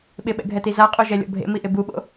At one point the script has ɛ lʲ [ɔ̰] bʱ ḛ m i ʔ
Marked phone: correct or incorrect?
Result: correct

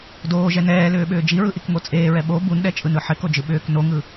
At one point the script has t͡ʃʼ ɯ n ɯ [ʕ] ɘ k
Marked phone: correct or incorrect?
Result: incorrect: ħ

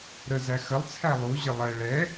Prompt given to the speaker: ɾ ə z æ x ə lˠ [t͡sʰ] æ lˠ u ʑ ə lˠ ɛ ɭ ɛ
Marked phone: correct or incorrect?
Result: correct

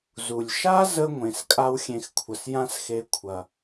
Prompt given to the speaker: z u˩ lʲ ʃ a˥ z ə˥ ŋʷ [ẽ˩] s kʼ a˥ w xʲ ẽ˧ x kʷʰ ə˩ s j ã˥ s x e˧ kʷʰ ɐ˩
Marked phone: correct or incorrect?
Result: correct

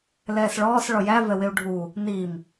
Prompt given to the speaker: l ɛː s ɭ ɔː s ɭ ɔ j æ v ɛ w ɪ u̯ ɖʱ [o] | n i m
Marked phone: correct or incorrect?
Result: incorrect: u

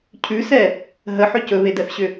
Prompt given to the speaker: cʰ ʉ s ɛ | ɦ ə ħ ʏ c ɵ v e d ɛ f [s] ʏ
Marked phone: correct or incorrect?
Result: incorrect: ɕ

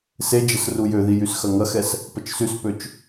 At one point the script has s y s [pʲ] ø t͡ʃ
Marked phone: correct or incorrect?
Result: incorrect: p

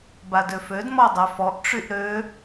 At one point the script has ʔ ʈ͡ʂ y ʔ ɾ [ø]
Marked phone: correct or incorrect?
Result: correct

